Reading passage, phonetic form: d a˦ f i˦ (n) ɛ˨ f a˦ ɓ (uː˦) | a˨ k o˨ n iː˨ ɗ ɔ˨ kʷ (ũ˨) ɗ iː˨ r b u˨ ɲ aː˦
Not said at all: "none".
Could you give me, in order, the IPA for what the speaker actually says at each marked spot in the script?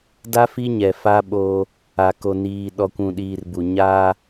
ɲ, oː˦, ũ˨

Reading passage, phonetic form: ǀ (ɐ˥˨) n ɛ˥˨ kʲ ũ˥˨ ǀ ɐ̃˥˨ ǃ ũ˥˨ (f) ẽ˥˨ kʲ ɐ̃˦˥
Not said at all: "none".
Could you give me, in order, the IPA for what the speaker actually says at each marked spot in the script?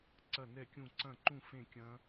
ɐ˥˨, f

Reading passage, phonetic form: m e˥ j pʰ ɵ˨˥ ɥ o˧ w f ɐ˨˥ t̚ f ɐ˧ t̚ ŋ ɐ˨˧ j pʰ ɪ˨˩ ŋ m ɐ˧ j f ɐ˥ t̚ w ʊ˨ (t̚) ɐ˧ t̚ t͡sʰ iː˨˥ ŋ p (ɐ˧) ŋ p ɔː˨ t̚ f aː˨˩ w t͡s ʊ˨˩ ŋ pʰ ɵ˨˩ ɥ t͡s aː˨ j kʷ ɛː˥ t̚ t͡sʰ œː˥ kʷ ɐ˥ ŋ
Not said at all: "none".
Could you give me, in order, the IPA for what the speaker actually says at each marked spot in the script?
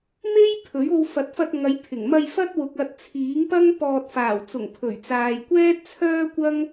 k̚, ɐ˥

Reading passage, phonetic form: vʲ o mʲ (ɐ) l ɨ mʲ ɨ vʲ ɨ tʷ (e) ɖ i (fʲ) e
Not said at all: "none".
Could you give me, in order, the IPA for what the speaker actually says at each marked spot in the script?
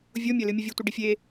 ɐ, i, fʲ

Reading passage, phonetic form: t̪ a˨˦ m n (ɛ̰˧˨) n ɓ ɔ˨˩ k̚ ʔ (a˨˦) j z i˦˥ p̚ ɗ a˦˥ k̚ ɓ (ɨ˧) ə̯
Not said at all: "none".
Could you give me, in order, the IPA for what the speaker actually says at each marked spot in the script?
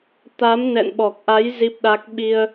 ɛ̰˧˨, a˨˦, i˧

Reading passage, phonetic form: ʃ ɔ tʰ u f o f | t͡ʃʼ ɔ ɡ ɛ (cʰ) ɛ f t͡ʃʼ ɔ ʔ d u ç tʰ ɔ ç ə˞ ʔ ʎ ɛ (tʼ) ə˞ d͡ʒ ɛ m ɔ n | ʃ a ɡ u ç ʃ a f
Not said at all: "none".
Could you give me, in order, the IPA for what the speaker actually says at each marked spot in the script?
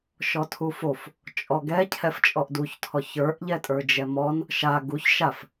cʰ, tʼ

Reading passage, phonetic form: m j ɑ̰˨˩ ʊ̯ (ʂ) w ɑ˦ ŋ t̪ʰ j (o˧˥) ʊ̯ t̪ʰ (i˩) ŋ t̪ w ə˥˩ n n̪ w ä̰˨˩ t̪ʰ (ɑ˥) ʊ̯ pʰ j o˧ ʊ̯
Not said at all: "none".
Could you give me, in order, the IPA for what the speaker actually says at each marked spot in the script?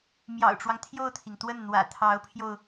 ʈ͡ʂ, o˥˩, i˩, ɑ˧˥

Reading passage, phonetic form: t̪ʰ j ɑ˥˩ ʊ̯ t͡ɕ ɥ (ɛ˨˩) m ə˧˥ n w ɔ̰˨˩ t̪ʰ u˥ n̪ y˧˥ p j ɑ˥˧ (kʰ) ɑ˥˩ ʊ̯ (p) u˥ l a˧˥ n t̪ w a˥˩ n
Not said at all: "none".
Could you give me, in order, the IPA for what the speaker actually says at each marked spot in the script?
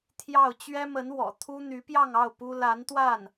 ɛ˥, ŋ, p

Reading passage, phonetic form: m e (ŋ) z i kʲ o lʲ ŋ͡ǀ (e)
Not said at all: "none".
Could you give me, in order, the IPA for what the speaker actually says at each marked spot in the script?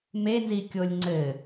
n, ɘ

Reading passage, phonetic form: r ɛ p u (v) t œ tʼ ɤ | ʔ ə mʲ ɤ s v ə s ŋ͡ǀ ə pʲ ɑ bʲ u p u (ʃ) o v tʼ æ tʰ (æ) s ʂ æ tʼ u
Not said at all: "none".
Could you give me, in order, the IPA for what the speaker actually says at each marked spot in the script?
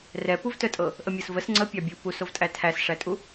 v, s, æ

